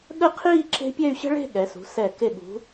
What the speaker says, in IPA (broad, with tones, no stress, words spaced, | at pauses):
ɠə˥˧qʰiː˥˧ ǁe̤˥ pʲɛ˥˧y̯ɕə̤˥ɭe̤˥˧ ɠɛ˩˧sṳ˩˧ sɛ˧˩ ke˧˩ɠṳ˩˧